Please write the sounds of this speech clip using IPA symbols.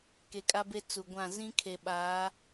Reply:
k e˨ kʼ a˦ b e˦ t͡s u˨ ɡʷ ã˦˨ z ĩ˦ kʰ e˨ ɓ aː˨˦

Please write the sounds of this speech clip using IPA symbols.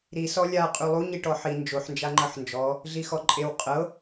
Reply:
ɾ i s ɔ lʲ a qʼ u lˠ u ɲ i ʈ ɔ ħ i n d͡ʒ o ħ n d͡ʒ a ŋ͡ǃ ɤ ħ n d͡ʒ ɔ | ɮ i x ɔ ǃʼ e w qʼ ɤ

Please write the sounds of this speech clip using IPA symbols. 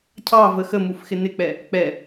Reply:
cʰ ɑ v ə x ə m u f x ɪ n ɪ k͡p ɛ | k͡p ɛ

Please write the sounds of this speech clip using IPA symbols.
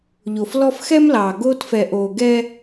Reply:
ʎ o˨ f l ɔ˦ f x ɛ˦ m l ɑː˨ ɡ oː˦ t f ɛ˨ ʔ oː˨ ɡ ɛː˦

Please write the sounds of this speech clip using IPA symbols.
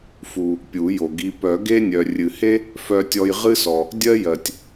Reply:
f u˩ | pʲ u˨˩˦ j o˩ ɡ i˧ p œ˨˩˦ ɡ e˥ nʲ œ˩ rʲ ɨ˩ h e˥ | f œ˧ tʲ ɔ˧ j ʁ ɨ˥ s ɔ˩ | dʲ ɜ˥ j ɜ˩ tʲ

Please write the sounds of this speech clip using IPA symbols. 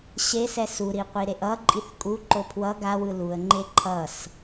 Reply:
ɕ e s ɛ s u ɾ i qʷ i ɾ e ʔ ʌ ǃʼ i θ kʼ u ǃ o pʰ w ʌ ɡ a w ɯ l u ə̯ ŋ͡ǃ e ǃʰ ʌ s

